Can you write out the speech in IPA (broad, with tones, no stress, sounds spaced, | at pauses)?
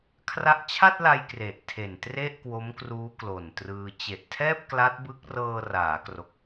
kʰ r a˦˥ ʔ t͡ɕʰ a˥˩ t̚ l a˧ j k r e˨˩ ʔ tʰ e˨˩ n t r e˥˩ ʔ k w o˦˥ m k r uː˦˥ k l o˨˩ n t r ɯː˧ t͡ɕ e˨˩ ʔ tʰ ɛː˥˩ p̚ k l a˦˥ t̚ b ɯ˦˥ k̚ r ɤː˧ r aː˩˦ k r o˨˩ k̚